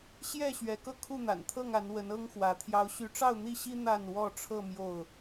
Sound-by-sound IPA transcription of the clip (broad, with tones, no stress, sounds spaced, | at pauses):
ɕ j ɛ˥˨ ɕ ɥ ɛ˨˦ k ɤ˧ kʰ u˥˨ n̪ a̰˨˩ n t̪ʰ ɤ˥˨ ŋ a˨˦ n w ə˨˦ n ɤ˦ ŋ x w ä˨˦ t̪ʰ j ɑ˨˦ ʊ̯ ɕ y˨˦ ʈ͡ʂ ɑ˥˨ ʊ̯ n̪ i˥˨ ɕ i˦ n̪ a˥˨ n w ɔ˥˨ ʈ͡ʂʰ ɤ˥˨ m j o˥˨ ʊ̯